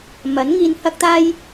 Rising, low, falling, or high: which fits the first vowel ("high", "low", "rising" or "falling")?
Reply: rising